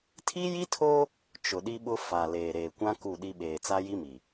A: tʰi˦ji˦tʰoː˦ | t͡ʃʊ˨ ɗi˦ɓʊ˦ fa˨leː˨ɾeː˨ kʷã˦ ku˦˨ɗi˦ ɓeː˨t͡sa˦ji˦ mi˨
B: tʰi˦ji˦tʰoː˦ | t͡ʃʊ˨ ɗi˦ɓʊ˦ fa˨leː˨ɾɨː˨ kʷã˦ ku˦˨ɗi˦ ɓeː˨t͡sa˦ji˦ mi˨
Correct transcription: A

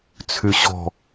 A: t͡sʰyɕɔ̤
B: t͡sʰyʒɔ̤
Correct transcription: A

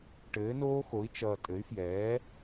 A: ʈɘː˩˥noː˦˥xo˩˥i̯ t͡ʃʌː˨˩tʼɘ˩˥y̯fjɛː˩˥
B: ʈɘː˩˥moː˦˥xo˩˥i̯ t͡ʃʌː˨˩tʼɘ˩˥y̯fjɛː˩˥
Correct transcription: A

